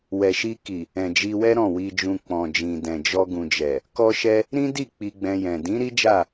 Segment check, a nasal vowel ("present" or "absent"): present